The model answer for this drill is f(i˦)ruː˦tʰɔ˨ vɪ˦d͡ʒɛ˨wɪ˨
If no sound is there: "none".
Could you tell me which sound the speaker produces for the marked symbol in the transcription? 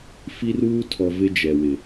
i˦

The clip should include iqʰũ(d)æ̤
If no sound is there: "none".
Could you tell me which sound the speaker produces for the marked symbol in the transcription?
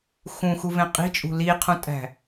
tʼ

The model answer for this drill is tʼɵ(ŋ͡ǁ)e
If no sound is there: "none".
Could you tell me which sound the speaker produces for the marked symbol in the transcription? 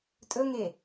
ŋ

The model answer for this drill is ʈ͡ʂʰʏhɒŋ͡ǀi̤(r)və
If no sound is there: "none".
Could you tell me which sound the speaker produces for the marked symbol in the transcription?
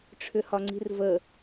r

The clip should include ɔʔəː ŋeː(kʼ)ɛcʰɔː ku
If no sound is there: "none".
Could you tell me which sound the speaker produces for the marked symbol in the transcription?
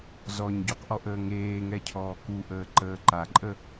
ŋ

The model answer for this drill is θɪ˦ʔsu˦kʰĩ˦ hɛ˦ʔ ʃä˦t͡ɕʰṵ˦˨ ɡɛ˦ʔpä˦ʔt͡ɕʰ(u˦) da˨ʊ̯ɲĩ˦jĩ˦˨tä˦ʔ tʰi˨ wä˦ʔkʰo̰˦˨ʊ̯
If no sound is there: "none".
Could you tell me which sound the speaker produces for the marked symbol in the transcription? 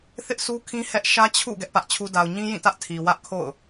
u˦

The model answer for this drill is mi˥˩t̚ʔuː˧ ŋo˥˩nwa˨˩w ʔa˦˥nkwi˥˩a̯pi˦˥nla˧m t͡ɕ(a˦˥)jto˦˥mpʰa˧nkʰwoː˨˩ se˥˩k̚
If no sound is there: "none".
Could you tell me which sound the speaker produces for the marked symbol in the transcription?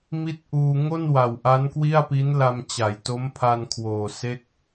a˩˦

